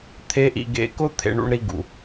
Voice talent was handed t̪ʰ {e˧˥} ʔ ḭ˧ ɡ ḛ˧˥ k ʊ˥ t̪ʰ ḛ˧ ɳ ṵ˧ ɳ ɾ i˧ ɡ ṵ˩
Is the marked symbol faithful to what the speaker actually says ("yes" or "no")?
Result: yes